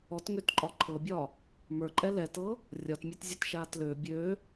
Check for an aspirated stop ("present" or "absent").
present